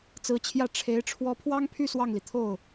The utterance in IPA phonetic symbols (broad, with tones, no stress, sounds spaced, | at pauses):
t͡s ɹ̩˧˥ t͡ɕʰ j ä˥˩ ʈ͡ʂʰ e˧˥ ɪ̯ ʈ͡ʂʰ w ɔ˧˥ pʰ w ɑ˥ ŋ pʰ y˥˧ s w ɑ˥˩ ŋ l i˩ t̪ʰ o˥˩ ʊ̯